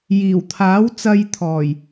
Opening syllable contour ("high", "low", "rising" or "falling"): low